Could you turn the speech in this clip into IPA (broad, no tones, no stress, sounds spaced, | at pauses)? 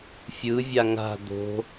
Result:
fʲ ɯ vʲ a ŋ a̤ d̪ o̤